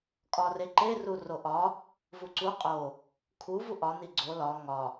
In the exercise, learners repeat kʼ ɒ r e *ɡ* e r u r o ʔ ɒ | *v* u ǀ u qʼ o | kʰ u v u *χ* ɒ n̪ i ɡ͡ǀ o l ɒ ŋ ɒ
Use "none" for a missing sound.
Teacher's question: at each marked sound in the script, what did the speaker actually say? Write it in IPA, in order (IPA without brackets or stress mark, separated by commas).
ǃ, v, ʔ